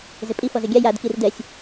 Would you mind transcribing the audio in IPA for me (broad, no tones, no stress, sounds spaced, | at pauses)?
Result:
z ɪ pʼ i f ɔ z ɪ ɡʲ a j a d k i r d ɛ sʲ